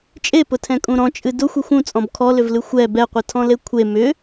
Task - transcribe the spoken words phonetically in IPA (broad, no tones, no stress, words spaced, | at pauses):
t͡ʃʼepʊtʰɛ̃kʼũ ɾɔ̃t͡ʃʼɨ dʊxʷexʷ ũt͡sʼɔ̃b kʰɔlʏvlɨ xʷɛ bɛqʷɨtʰɔ̃le kʷʰe mʏ